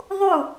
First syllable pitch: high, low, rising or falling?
falling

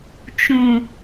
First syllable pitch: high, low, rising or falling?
low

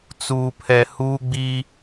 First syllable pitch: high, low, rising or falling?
low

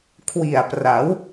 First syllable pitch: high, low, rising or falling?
low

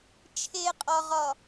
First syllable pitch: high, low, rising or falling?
low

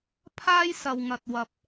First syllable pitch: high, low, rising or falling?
high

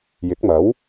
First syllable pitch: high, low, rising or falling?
rising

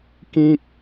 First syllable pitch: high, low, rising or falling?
high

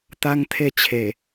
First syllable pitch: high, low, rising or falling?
high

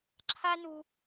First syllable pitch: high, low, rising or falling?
high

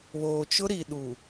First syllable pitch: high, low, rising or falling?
low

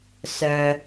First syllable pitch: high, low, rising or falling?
low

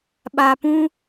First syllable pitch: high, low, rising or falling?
low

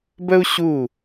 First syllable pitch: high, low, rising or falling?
high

